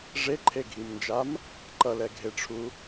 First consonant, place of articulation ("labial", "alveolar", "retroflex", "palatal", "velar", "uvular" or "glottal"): retroflex